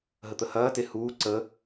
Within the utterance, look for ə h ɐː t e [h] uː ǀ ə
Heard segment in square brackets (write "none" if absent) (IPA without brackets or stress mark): h